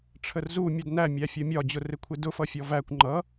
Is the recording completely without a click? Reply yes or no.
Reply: no